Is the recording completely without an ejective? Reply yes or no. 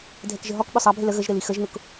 yes